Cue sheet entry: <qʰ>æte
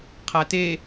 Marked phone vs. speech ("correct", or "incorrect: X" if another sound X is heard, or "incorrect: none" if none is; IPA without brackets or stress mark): correct